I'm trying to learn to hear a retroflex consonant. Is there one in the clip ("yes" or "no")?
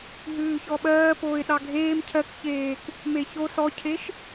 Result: no